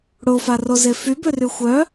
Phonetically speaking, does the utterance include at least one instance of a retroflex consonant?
yes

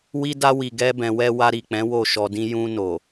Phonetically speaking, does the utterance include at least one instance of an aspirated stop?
no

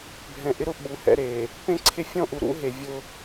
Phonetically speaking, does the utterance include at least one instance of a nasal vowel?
yes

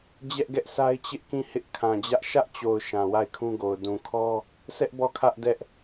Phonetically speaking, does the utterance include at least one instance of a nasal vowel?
yes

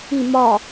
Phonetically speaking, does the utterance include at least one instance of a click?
no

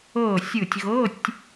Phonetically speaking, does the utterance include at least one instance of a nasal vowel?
no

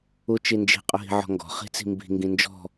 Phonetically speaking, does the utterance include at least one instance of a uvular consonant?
yes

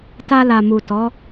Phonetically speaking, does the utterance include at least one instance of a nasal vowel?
no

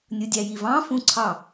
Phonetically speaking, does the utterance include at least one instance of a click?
yes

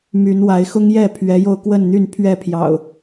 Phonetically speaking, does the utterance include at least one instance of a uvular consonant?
no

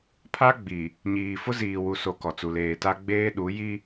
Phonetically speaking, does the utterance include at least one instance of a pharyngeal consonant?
no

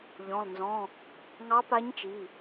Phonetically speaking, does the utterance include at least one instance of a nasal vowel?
yes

